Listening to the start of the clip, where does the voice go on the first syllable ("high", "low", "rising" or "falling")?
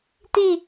falling